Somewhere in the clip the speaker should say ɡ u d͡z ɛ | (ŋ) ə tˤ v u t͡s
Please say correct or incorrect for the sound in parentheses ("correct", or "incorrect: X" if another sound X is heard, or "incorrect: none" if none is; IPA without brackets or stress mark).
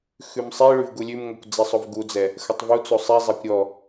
incorrect: x